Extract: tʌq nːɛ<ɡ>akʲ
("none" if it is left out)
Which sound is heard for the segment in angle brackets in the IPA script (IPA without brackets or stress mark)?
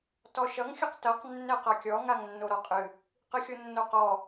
q